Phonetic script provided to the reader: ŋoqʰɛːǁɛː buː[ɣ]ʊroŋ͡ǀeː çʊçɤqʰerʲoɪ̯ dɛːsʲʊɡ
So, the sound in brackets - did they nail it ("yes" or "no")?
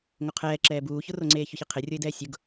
no